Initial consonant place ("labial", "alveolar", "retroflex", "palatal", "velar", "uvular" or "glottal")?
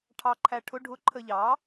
retroflex